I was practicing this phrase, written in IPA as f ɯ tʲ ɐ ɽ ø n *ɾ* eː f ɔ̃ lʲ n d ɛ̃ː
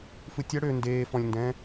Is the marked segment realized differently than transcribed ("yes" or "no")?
yes